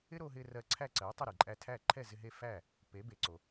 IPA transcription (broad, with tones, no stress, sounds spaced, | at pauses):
ɪ˥ ɾ o˧ ɦ ɪ˧ r ɜ˧ ǀʰ æ˥˩ ǀ ɜ˩˥ tˤ ɪ˥˩ ɾ e˩ ǃʼ æ˧ tʰ æ˥˩ ǃʰ ɛ˥˩ z ɪ˧ ɦ e˥˩ f æ˥˩ | p e˩˥ b e˩ ǀ o˩